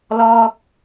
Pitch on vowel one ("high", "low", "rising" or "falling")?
high